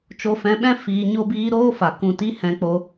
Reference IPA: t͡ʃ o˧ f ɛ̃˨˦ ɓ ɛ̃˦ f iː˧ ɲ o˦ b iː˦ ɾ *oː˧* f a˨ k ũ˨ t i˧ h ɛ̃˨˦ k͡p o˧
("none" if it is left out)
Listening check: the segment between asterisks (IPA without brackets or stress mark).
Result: oː˦